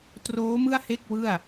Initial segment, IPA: t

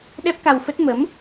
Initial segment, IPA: ɗ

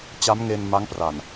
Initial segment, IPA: t͡ɕ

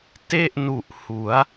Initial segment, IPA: t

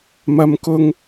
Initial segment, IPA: m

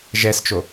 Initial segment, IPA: ʒ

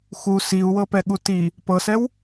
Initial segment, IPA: x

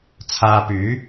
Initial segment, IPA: t͡sʰ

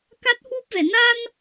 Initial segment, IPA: k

